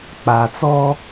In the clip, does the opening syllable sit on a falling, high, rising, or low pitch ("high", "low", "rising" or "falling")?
low